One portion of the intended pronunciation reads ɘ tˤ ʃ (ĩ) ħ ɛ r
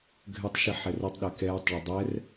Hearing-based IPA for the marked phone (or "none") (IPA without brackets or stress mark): i